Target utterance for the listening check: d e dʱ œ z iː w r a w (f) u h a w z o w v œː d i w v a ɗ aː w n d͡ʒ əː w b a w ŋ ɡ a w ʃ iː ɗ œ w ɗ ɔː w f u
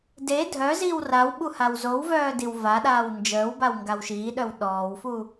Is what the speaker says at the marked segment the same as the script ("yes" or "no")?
no